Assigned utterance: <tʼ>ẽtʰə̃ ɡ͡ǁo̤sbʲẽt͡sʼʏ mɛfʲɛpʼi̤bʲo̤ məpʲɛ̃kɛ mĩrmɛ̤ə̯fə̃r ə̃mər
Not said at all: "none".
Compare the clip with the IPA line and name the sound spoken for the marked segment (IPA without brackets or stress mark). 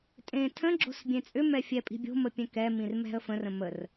tʼ